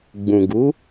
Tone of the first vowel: low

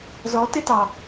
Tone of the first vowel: rising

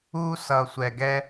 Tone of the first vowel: high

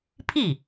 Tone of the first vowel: falling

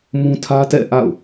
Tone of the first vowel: high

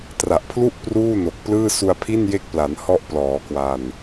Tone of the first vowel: low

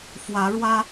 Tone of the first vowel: rising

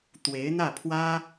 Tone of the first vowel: rising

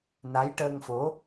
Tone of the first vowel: rising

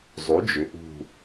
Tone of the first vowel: rising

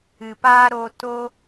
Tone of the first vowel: low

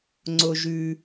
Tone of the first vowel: low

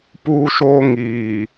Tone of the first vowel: high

